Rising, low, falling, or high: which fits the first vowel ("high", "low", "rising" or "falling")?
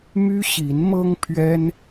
high